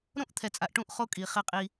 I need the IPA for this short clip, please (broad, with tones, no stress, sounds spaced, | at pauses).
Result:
ɾ õ˦ ʔ t̪ʰ ɛ˨ t͡sʼ a˨ ʔ ʈ ũ˦˨ ʔ χ o˦ kʼ i˨ χ e˦ qʼ i˦